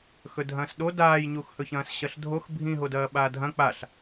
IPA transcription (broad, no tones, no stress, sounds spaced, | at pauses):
x ɵ dʱ ɐ̃ː s ɗ o d aː j ɲ u x h ɵ ç ɐ̃ː s ɕ ɐ ɬ dʱ o x bʱ ĩ ɦ o d ɐː ɓ aː dʱ ɐ̃ k͡p a ɬ